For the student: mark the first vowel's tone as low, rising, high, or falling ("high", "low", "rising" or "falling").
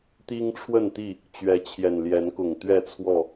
high